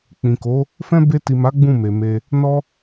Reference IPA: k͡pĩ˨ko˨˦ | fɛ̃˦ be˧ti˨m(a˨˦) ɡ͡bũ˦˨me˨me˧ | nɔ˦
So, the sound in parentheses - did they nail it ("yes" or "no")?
yes